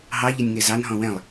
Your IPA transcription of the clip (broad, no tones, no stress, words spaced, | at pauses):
ɦɑ ʎɛnʲŋɛzɑn ɦɔ̃wɛ̃lˠ